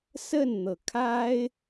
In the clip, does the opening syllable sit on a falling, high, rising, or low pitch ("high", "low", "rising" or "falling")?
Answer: falling